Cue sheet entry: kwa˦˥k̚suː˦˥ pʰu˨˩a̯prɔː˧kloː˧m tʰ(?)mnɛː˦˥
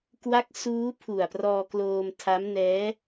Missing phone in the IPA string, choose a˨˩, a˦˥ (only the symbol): a˦˥